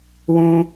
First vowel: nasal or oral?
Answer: nasal